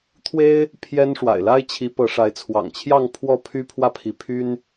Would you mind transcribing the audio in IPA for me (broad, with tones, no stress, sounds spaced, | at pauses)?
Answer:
t̪ʰ w e˥ ɪ̯ | pʰ j ɛ˥ n ʂ w a̰˨˩ ɪ̯ l a˥ ɪ̯ t͡ɕʰ i˧˥ p ɤ˧˥ ʂ a˧˥ ɪ̯ t͡sʰ w ɑ̰˨˩ ŋ t͡ɕʰ j ɑ˥˧ ŋ pʰ w ɔ˥˩ pʰ y˥ pʰ w ä˥˩ pʰ i˧˥ pʰ y˥ n